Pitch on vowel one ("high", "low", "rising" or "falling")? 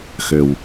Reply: low